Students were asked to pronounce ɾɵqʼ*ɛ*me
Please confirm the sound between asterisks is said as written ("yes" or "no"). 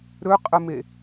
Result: no